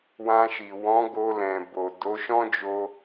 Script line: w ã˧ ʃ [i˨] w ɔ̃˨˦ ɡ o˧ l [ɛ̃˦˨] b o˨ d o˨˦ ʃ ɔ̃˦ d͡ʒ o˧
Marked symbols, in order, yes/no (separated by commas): yes, no